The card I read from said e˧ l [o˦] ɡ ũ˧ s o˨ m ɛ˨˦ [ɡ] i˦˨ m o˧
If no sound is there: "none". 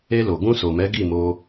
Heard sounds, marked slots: o˨, ɡ

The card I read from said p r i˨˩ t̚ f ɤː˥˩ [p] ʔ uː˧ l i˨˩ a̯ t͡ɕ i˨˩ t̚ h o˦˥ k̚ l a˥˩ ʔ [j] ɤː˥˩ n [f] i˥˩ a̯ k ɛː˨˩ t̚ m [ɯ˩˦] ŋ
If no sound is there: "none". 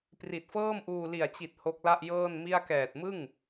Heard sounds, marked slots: m, j, m, ɯ˥˩

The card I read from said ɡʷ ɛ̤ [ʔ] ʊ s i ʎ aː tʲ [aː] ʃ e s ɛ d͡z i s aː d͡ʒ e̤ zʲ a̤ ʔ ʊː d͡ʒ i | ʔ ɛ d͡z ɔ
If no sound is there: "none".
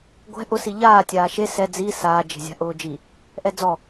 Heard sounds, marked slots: ʔ, aː

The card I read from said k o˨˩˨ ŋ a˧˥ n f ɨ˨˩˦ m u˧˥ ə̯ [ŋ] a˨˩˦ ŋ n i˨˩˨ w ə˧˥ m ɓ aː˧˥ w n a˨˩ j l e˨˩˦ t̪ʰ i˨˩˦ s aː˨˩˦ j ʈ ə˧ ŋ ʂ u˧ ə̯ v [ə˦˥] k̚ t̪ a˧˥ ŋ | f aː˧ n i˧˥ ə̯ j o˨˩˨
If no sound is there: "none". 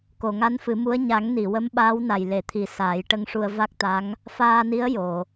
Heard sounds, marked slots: ɲ, a˦˥

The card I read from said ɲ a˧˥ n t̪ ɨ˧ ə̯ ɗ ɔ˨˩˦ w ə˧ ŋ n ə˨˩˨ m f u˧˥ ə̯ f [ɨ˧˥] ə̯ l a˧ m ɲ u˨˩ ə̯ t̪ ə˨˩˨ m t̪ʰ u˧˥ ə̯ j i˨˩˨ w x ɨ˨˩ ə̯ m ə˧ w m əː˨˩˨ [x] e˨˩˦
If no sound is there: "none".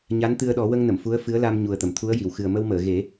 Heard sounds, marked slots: ɨ˧˥, ɣ

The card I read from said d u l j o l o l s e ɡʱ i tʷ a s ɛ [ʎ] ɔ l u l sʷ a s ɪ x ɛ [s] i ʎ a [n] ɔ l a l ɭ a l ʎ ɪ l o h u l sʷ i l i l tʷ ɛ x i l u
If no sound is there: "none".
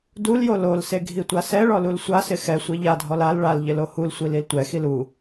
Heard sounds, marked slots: ɭ, sʷ, dʱ

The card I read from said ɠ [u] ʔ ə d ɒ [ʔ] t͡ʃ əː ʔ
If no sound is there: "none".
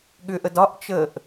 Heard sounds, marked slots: ʏ, ʔ

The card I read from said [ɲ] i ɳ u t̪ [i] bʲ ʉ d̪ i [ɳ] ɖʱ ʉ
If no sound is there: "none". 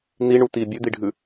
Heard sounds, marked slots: n̪, i, none

